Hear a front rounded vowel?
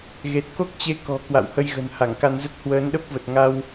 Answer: no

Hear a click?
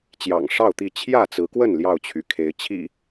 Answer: no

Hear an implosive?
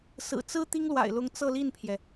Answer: no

